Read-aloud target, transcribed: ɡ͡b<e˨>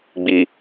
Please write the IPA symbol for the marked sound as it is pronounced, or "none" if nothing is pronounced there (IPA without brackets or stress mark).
i˨